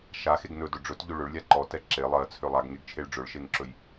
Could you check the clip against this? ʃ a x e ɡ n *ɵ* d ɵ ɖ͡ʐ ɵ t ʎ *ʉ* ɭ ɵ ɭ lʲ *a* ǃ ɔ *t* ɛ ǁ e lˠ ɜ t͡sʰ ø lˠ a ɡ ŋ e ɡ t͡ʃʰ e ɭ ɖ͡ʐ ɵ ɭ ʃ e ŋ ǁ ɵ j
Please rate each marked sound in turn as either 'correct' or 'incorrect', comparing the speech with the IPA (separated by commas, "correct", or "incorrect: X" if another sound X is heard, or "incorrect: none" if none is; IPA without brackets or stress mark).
correct, incorrect: ø, correct, correct